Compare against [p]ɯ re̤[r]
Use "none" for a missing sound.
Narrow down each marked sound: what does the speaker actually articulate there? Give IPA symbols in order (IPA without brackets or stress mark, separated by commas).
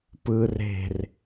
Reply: p, r